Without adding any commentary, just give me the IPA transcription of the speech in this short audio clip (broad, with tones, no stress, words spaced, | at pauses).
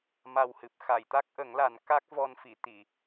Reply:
ma˨˩whɨ˨˩p̚ xa˨˩˨jt̪a˦˥k̚ʔə˨˩˦ŋla˨˩˦n ka˦˥k̚vɔ˧nfi˨˩˨ t̪i˨˩˨